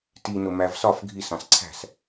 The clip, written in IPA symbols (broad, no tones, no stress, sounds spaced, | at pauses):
t i n ʊ m æ v s ɒ f ɡʱ i s ɑ̃ s ǀʰ æ̤ s